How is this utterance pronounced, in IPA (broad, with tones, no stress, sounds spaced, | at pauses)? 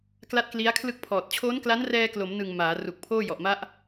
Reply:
k l a˦˥ t̚ k l i˦˥ a̯ kʰ l ɯ˥˩ k̚ pʰ ɔː˨˩ t̚ t͡ɕʰ oː˦˥ n k l a˦˥ n r ɛː˧ k l o˩˦ m n ɯ˨˩ ŋ m aː˩˦ r u˨˩ k̚ pʰ oː˥˩ j ɔ˨˩ ʔ m a˦˥ ʔ